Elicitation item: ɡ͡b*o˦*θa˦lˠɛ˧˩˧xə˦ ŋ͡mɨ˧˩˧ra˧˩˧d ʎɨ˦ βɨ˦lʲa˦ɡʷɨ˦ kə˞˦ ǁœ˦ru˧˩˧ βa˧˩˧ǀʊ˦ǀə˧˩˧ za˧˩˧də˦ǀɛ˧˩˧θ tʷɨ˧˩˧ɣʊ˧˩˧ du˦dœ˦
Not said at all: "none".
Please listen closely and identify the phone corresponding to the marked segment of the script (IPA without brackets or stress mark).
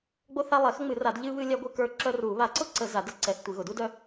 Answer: o˦